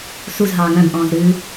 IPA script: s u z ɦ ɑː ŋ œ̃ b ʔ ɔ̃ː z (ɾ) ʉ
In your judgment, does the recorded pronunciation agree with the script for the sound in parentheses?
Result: yes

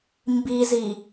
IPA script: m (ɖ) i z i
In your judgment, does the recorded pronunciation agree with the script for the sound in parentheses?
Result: no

